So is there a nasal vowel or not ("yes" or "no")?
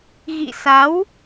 no